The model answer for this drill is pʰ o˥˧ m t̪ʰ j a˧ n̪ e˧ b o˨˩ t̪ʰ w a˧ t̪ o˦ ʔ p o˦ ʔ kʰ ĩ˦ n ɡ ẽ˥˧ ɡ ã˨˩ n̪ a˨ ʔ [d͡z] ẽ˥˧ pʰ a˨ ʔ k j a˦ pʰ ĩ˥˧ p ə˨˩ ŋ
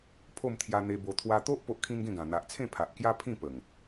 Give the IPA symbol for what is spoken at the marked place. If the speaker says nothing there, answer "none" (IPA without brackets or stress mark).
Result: t͡sʰ